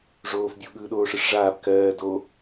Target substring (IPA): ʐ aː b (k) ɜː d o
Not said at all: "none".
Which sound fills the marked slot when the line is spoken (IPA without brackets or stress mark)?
k